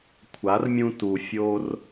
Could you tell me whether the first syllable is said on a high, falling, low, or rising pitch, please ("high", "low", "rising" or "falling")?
rising